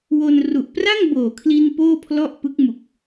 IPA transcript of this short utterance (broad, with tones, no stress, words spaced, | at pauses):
wo˧n ru˨˩ʔpra˥˩ŋboː˨˩kʰli˧n poː˥˩pʰlɔ˥˩ʔpɯ˦˥k̚ mu˨˩k̚